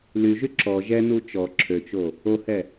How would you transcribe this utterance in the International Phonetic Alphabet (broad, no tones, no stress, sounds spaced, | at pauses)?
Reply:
l y ʒ y ǁ ɔ ʒ ɛ n u t͡ʃ ɔ ǁʰ ø t͡ʃ o | o h ɛ